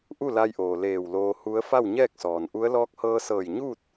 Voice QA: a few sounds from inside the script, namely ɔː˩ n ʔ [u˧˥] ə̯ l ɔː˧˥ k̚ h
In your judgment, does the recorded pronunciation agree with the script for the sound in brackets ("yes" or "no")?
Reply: yes